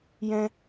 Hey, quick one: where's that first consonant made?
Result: palate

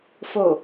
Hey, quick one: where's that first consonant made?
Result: lips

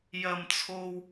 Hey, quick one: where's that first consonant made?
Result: palate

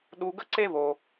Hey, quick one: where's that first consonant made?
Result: tongue tip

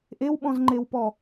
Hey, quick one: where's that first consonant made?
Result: throat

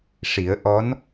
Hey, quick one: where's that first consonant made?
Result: retroflex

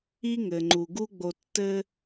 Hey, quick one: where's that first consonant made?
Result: velum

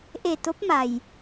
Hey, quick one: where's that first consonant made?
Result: throat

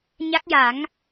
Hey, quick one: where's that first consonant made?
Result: palate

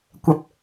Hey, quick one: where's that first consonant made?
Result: velum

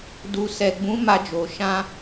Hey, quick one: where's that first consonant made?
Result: tongue tip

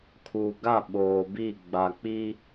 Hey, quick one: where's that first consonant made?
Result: velum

